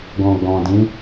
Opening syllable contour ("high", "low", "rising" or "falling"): low